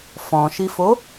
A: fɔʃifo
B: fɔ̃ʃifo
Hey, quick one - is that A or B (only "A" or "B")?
B